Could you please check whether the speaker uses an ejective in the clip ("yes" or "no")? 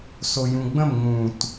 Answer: no